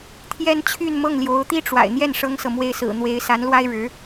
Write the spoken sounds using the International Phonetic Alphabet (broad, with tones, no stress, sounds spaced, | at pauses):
t̪ʰ j ɛ˥ n t͡ɕʰ y˥˧ n m ɤ˥˩ ŋ l j o˧˥ ʊ̯ t̪ i˥ ʈ͡ʂ w a̰˨˩ ɪ̯ n̪ j ɛ˥˩ n ʂ ɤ˥ ŋ s ɤ˨ m w e˥˩ ɪ̯ s ɹ̩˨˩ n̪ w e˧˥ ɪ̯ s a˧˥ n l w a˥ ɪ̯ ɻ ɻ̩˧˥